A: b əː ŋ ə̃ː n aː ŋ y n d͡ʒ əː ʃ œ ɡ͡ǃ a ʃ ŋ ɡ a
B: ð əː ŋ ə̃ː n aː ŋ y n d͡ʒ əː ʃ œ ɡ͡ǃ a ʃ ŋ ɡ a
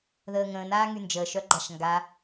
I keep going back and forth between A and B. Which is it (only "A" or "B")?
B